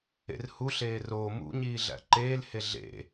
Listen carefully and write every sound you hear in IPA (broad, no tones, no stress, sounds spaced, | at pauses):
ḛ r h u ɬ eː r oː m ṵ ɲ iː ɮ æ̰ ǃ eː l h e ɮ ḛ